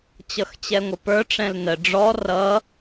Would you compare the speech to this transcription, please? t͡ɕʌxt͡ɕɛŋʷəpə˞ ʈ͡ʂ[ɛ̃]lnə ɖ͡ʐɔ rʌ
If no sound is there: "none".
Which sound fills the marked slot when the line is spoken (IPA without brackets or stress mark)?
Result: ɛ̃